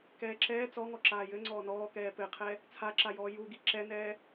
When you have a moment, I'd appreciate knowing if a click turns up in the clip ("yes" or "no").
yes